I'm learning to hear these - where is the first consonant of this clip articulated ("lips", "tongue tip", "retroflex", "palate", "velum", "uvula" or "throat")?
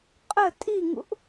uvula